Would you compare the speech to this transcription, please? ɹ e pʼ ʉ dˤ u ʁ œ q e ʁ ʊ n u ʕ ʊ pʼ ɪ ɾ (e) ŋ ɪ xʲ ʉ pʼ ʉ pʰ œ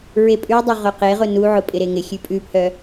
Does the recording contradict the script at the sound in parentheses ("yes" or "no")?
no